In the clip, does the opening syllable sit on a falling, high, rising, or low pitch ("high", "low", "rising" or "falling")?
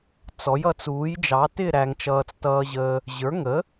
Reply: rising